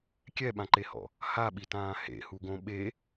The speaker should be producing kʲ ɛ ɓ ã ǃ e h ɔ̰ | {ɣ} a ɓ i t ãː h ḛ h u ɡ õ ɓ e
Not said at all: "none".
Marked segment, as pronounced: h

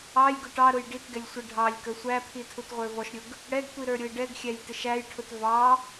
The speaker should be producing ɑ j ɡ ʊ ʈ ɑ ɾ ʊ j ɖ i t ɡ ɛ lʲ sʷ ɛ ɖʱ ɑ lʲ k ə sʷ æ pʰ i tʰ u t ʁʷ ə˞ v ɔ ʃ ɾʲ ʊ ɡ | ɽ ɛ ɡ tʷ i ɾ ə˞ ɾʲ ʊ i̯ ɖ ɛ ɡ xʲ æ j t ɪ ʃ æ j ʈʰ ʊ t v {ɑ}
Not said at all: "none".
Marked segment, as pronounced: ɑ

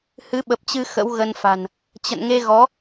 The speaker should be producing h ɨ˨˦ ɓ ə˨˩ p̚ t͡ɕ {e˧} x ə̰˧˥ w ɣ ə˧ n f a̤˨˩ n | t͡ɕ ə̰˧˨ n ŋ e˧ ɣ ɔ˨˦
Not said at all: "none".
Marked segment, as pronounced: ɨ˧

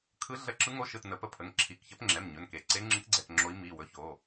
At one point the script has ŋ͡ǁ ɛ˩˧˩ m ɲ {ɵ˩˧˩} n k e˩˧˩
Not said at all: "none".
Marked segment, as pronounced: ɵ˩˧˩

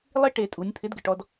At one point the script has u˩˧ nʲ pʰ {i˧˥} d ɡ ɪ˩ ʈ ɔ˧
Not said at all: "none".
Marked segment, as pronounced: ɪ˧˥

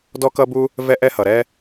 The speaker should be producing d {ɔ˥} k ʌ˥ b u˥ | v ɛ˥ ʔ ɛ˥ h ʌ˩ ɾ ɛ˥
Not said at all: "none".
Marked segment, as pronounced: ɔ˥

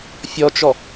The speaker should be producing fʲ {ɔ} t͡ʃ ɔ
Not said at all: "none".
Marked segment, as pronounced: ɔ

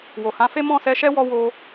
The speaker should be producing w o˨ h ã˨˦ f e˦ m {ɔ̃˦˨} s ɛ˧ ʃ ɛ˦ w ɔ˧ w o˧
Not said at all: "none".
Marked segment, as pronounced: ɔ̃˦˨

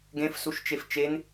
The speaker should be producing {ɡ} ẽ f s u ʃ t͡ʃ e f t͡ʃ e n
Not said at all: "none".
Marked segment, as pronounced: ɡ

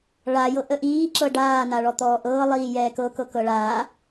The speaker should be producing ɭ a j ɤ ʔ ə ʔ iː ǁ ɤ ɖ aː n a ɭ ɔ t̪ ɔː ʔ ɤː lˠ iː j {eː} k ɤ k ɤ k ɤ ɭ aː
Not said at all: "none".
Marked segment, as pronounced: ɛː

